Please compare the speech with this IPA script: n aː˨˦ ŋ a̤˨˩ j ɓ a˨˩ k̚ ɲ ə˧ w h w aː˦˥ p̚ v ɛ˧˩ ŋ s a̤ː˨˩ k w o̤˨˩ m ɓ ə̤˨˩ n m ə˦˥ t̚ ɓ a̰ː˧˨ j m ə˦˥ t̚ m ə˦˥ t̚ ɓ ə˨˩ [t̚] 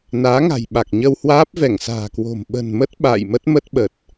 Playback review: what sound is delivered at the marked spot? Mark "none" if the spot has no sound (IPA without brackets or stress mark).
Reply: t̚